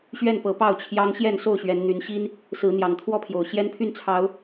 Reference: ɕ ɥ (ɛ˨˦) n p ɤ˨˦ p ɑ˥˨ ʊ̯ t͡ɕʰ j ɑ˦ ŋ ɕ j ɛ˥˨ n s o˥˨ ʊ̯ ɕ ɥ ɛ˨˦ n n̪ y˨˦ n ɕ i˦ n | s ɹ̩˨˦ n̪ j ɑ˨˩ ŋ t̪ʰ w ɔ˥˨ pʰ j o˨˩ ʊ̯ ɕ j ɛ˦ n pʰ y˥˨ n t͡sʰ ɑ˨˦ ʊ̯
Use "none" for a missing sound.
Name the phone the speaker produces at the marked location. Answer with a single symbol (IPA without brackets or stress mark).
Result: ɛ˥˨